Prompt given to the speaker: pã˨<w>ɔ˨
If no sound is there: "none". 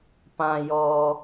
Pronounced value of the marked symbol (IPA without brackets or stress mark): j